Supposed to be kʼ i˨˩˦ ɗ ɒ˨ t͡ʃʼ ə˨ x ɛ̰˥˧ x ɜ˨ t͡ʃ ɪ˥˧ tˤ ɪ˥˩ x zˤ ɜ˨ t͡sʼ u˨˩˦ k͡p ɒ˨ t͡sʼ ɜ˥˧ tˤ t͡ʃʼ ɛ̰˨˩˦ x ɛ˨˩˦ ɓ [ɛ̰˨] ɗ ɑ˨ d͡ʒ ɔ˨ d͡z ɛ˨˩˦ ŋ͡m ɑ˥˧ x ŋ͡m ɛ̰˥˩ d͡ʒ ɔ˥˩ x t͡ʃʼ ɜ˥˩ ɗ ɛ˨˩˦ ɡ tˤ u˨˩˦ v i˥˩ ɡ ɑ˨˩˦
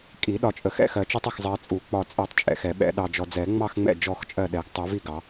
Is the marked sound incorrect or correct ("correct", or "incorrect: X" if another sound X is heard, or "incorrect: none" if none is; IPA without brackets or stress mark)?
correct